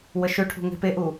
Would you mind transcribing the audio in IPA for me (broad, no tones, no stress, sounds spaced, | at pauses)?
w ə ʃ ø ʈʰ ṳ ŋ e̤ p e ʔ u